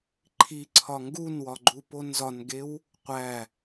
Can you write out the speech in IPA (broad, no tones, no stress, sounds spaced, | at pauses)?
ǃʰ i ǀʰ ɒ ŋ ɡ u n w ɒ ɡ͡ǃ u p o n z ɒ n ɡ e w | qʷ æ